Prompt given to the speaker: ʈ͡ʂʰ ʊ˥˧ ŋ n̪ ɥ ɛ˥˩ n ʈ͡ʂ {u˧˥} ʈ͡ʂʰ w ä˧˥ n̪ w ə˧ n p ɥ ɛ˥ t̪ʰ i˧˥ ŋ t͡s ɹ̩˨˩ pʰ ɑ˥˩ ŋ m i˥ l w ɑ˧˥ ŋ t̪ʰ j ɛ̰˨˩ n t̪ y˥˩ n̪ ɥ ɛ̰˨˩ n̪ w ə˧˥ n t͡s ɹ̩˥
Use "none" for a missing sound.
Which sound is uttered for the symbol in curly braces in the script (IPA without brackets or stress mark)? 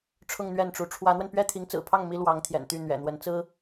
u˧˥